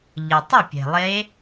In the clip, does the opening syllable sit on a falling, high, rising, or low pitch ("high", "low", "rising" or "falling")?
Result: low